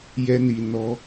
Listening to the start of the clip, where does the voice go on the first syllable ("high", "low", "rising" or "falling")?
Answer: high